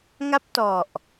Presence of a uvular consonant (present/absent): absent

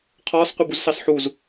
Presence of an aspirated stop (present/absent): present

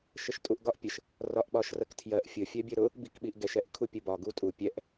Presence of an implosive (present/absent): present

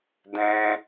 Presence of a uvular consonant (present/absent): absent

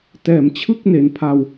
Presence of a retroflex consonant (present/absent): absent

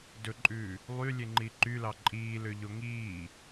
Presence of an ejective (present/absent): present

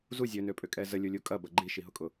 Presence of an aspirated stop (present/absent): absent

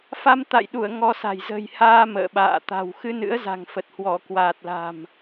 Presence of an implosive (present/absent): present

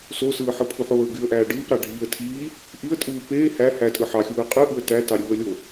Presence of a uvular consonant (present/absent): present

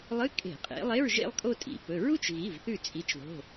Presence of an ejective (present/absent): present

